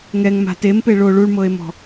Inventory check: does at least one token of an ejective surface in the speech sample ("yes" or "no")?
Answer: no